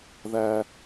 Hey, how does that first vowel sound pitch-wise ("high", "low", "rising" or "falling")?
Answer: high